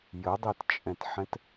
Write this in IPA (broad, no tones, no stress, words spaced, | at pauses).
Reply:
jədˤitt͡ʃʼɛ̃tħɛ̃t